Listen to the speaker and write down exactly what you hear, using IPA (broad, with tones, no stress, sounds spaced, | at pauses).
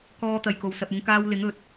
k ɔː˧ t̪ ɐ˨ j k o˨ w s ɐ˨ p̚ ʊ˨˧ ŋ k aː˧ w l ɪ˨˥ ŋ ɵ˨˥ t̚